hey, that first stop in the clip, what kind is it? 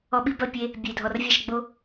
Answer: implosive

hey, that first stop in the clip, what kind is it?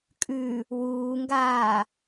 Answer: ejective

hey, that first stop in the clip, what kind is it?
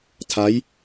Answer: aspirated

